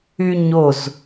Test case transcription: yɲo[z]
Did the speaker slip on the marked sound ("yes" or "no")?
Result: no